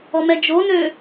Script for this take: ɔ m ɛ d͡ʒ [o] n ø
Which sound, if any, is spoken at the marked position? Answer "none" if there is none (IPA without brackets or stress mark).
o